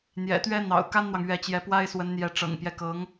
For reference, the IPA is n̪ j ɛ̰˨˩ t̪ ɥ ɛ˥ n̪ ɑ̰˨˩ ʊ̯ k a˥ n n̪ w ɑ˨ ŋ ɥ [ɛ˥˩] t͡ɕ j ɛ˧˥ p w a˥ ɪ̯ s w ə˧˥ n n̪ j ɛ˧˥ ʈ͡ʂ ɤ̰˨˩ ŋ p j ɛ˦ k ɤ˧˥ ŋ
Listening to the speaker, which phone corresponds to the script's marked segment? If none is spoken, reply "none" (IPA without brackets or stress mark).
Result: ɛ˧˥